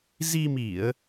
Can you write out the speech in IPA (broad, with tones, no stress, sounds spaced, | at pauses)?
z i˧ m i˧˩˨ ə̯